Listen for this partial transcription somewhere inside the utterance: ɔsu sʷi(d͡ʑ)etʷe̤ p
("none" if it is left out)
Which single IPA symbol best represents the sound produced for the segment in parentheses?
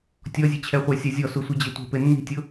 d͡ʑ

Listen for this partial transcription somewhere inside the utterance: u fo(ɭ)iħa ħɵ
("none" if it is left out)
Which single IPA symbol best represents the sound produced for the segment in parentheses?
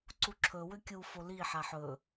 l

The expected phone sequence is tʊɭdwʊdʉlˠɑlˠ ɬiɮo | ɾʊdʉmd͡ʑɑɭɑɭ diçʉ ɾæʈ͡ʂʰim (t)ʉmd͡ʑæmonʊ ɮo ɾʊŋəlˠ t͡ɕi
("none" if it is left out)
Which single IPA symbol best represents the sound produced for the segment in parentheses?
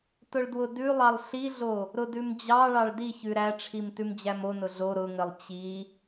t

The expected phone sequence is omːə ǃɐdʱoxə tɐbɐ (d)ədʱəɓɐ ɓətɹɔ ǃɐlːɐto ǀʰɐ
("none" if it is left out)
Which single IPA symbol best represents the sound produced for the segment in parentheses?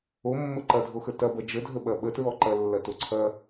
d͡ʒ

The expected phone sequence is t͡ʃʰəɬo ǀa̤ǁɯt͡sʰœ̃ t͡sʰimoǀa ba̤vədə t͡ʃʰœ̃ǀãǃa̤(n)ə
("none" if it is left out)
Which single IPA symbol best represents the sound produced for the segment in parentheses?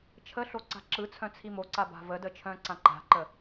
ǃ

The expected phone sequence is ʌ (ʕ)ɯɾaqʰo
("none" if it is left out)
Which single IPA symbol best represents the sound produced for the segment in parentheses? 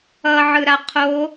ʕ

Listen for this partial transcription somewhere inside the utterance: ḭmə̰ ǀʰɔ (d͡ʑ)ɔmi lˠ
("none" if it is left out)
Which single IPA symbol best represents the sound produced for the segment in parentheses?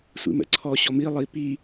ɕ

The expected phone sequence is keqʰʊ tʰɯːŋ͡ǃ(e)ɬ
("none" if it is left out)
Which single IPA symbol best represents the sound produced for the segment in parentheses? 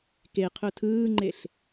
e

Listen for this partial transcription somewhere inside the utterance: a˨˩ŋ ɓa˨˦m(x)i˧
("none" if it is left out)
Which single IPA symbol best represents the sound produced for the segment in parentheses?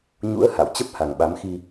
x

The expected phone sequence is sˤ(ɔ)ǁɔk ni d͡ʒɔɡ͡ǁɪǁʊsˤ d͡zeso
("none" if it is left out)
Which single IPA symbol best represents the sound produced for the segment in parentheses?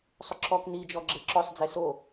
ʊ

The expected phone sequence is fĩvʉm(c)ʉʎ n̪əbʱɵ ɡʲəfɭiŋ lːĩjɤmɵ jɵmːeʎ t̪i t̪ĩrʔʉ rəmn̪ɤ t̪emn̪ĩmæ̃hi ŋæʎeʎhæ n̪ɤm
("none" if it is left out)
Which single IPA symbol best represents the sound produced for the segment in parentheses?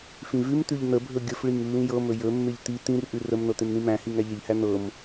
t̪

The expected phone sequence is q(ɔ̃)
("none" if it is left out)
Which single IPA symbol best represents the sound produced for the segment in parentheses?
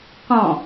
ɔ̃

